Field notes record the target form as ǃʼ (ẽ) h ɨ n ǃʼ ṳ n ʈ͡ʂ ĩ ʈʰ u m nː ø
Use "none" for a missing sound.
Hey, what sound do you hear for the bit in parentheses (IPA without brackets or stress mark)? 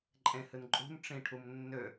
ẽ